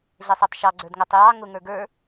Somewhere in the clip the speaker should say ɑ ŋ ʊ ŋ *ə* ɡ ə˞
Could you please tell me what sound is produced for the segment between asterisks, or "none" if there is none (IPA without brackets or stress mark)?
ə˞